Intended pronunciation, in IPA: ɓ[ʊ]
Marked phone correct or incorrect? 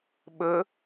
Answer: incorrect